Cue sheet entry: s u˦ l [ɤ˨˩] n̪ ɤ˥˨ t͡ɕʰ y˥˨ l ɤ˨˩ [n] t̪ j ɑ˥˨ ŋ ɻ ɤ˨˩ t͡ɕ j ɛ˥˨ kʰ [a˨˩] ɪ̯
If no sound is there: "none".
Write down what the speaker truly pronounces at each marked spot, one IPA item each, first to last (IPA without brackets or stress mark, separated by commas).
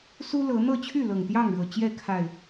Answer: ɤ˨˦, ŋ, a˨˩